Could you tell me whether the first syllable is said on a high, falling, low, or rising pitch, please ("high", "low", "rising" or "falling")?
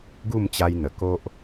falling